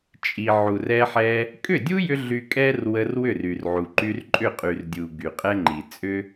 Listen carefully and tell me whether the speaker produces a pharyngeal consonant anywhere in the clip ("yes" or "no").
yes